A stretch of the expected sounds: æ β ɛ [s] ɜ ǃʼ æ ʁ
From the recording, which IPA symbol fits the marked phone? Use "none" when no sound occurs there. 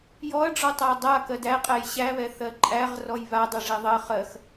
θ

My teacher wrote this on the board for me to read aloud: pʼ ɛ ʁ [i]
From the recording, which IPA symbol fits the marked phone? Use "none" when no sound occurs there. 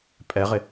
ɪ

